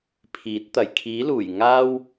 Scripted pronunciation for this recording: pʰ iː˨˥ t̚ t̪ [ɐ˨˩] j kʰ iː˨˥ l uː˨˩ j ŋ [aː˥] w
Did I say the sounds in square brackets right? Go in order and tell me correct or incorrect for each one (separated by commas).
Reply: correct, correct